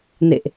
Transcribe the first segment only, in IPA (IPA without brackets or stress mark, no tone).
n